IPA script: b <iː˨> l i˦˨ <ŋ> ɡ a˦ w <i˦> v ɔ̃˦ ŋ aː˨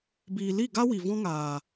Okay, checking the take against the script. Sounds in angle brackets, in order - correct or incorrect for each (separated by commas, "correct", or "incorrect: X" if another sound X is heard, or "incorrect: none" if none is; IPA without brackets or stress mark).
correct, incorrect: none, incorrect: i˨